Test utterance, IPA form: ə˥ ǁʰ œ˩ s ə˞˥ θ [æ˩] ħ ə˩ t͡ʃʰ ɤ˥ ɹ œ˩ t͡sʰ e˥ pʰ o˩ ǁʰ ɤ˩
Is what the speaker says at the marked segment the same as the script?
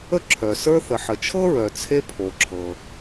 no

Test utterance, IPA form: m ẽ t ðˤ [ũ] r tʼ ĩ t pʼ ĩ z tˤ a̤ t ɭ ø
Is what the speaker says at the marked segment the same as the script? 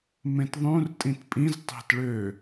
yes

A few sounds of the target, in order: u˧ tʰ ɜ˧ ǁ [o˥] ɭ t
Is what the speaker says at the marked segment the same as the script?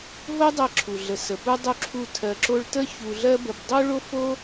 yes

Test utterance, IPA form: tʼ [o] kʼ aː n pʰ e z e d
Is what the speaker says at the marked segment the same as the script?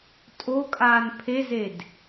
yes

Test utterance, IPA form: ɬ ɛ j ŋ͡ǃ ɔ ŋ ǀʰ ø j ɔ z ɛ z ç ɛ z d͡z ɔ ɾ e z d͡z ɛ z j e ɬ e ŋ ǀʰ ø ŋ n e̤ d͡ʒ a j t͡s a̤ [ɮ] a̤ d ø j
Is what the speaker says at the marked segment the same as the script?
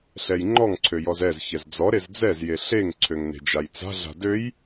yes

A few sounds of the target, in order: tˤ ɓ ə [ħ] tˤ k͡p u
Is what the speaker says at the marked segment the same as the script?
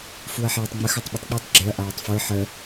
no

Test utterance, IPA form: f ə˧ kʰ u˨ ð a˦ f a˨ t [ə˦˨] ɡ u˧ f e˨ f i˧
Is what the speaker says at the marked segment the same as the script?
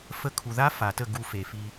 yes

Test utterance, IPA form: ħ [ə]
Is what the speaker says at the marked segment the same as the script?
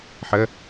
yes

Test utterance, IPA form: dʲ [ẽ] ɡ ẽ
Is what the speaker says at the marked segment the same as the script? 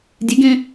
no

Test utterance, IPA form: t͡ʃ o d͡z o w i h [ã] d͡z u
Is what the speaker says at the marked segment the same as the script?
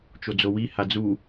no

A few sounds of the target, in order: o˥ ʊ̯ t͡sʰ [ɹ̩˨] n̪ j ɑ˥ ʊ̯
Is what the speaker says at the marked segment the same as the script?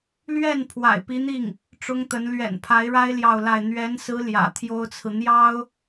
yes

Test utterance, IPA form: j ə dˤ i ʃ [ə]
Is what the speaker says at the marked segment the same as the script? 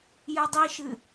no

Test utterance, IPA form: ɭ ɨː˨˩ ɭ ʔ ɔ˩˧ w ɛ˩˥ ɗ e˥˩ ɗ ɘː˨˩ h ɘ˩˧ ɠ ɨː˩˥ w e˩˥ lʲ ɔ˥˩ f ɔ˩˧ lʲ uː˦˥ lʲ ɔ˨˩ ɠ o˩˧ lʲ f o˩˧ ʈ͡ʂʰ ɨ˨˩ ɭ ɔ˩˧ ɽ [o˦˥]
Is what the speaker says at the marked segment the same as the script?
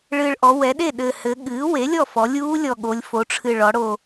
no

